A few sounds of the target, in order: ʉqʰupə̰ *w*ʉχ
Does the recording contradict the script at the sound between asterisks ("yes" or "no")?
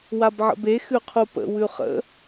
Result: no